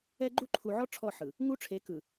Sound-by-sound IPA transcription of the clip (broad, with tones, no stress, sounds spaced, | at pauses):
ɛ˦ ɡ͡ǃ u˦ ǃʰ u˨ ʕ ɔ˦ ʈ͡ʂʰ ɔ˦˨ ħ ɯ˨ | ŋ u˦ ʈ͡ʂʰ e˨˦ k ɯ˨